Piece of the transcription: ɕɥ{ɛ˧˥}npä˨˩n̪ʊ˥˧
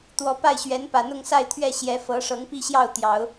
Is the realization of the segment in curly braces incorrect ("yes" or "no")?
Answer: no